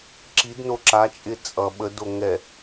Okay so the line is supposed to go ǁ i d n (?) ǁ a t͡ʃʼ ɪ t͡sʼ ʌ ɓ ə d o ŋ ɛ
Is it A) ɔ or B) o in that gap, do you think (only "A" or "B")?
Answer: B